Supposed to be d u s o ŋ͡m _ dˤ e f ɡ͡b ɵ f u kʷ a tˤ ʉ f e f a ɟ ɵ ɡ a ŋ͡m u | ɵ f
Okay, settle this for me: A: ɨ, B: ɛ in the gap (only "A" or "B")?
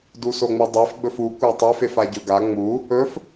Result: A